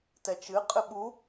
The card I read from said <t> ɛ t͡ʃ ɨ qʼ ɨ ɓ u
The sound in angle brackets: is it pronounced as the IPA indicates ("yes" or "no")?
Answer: yes